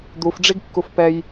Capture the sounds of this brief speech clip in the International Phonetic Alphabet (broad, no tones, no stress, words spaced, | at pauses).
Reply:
d̪ufɖ͡ʐiɡkːuf pɛj